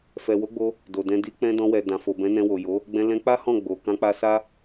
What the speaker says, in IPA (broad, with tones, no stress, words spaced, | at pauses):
fɛ˨wo˨˦ɡ͡bo˧ | do˨dɛ̃˧ di˧k͡pɛ̃˧ dɔ̃˧wɛ˨ dã˨fo˨bɛ̃˨˦ nɛ̃˧wo˨jo˨˦ | ɡ͡bɛ̃˧lɛ̃˧k͡pa˦ hɔ̃˦˨ ɡ͡bo˨ kã˧k͡pa˧sa˦